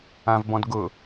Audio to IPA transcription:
ãvbɔ̃dɡʊ

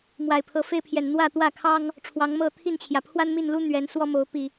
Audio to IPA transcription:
mwa˨˩ɪ̯pʰɤ˨˦fe˦ɪ̯pʰjɛ˨˩n n̪wä˥˨ t̪wä˥˨kʰɑ˦ŋ | ʈ͡ʂʰwɑ˨˦ŋmɤ˥˨ t̪ʰi˥˨nt͡ɕʰjä˩ pʰwa˦nmi˥˨nlu˦ n̪ɥɛ˨˦nswɔ˦mo˨˦ʊ̯ pi˨˩

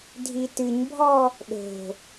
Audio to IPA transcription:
dʱitɨɲbʱɔ | ɗo̤

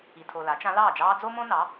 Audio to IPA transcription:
i˨tʰo˨la˩˥t͡ʃã˧˥ lɑː˥˩d͡ʒɑː˥ d͡zo˥mõ˥nɑ˩˥

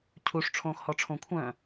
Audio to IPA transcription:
cʰuʂ ʈ͡ʂʰõːxhɔʈ͡ʂʰõ kʷʰœ̃

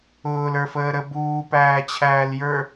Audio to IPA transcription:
ʊːlə˞fəːɾə buːpæːt͡ɕʰæːljə˞

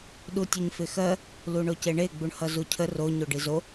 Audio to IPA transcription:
ɗutʲəɲfɪxɜ | luɳoceɳe ɡ͡buɳhʌzucʰə ro ɲoɖizo

